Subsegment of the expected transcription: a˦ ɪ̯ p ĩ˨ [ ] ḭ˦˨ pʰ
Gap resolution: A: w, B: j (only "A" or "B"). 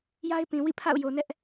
A